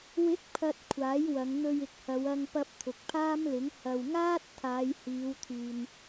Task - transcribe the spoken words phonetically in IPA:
wɪ˨˥k̚pʰɐ˨t̚ kʷʰaː˨˥jwɐ˨˧ŋn̪ɵ˧ɥ ɪ˨k̚hɐ˨˧wɐ˧ŋpɐ˧p̚ t̪ʰʊ˨k̚pʰaː˥mlɪ˨˥ŋ hɐ˨wŋaː˥t̚t̪ʰaː˨˧jhiː˨˧w t̪ʰyː˨n

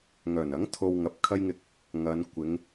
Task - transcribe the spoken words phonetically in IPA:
ŋœː˨˩nɐ˨˥ŋ t̪ʰo˧w ŋɐ˨˥p̚kʰɐ˥jŋɪ˧k̚ | ŋɐ˨˧n kʷɪ˨˧ŋ

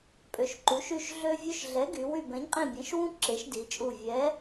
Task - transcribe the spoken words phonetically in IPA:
pʼø˩˧ʃǃu˩˧ʃy˦˨ʃ ɮø˥vʲø˥ʃ ɮɛ˨˥ɡy˩˧ wy˦˨bɛ̃˨˥ɲqʼĩ˦˨ bʲɛ̃˨˥ʃwũ˥ ǁe˨˥ʃdi˩˧t͡ʃʼu˦˨ vʲɛ˨˥

